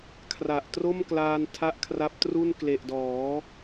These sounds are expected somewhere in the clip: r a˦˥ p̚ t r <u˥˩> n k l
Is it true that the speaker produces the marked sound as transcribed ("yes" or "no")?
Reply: yes